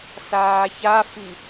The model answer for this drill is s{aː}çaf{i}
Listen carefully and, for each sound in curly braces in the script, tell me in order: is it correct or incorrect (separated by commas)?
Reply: correct, correct